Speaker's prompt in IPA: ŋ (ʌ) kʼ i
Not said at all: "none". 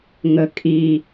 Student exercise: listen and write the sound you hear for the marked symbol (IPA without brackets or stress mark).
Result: ə